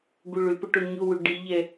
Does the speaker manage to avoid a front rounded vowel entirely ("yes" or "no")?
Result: no